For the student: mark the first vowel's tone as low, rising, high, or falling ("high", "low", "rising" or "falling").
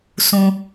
low